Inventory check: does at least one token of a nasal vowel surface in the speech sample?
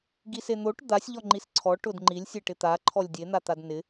no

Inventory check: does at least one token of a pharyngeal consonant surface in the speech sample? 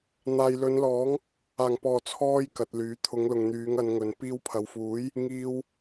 no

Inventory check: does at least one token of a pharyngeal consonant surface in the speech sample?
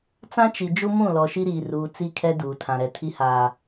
no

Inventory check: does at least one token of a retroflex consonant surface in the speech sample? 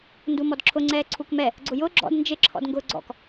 no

